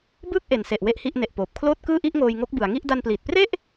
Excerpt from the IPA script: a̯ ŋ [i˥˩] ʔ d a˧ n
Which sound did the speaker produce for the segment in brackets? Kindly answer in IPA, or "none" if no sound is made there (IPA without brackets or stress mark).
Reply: i˥˩